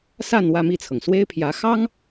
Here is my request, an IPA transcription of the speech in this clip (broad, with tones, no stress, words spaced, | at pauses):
sa˥˧n wä˥˧mi˥˩t͡sʰɤ˩ŋ swe˥ɪ̯pʰjä˧˥ xɑ˥ŋ